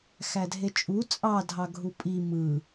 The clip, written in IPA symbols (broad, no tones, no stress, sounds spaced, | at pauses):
x æ dʱ e t͡ʃʼ u t͡sʼ ɑ dʱ ɑ ɡʱ u pʼ i m ɯ